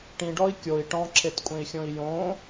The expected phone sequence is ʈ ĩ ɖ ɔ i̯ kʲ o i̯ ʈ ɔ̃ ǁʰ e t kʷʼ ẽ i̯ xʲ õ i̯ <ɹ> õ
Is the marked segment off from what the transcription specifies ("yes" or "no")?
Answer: yes